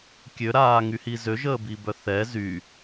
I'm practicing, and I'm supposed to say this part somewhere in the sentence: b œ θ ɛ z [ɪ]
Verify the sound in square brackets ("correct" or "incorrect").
incorrect